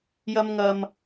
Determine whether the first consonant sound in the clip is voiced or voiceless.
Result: voiced